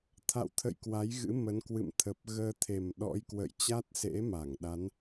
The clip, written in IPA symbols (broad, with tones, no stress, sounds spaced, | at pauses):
t̪ʰ a̰˧˨ w t̪ʰ ə̰˧˨ j k w a˨˦ j ɣ ɨ̰˧˥ m ə˨˦ n k w ɨ̰˧˨ m t̪ʰ ə˨˩ p̚ ɣ əː˧ t̪ʰ e˨˩ m ɗ ɔ̰˧˥ j k w ə̰˧˨ j t͡ɕ a˦˥ t̚ s ḛ˧˥ m a˧˩ ŋ ɗ a˨˦ n